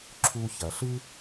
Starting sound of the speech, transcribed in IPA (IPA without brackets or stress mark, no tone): ǁʰ